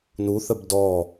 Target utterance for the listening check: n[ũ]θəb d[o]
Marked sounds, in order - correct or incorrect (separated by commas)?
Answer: incorrect, incorrect